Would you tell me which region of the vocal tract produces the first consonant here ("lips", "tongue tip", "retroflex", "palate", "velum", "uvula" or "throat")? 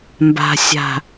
lips